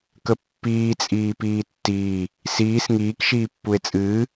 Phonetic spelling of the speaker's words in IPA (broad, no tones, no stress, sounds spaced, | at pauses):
k ə pː iː t͡sʼ iː p iː tː iː | s iː s ŋ iː k ʃ iː pː u e̯ t͡sʼ ɨː